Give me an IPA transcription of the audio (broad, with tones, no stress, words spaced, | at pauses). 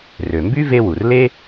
rø˩mby˥ ve˥wu˩r le˥